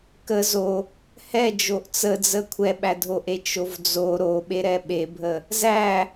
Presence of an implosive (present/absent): present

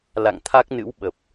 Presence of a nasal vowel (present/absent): absent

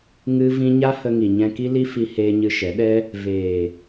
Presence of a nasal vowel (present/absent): present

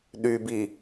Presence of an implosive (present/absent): present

